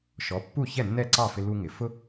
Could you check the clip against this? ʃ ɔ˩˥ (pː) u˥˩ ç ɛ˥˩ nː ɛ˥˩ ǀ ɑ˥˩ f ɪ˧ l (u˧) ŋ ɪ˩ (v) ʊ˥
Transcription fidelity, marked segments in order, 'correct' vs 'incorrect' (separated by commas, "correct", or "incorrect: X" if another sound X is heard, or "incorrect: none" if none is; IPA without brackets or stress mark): correct, correct, incorrect: f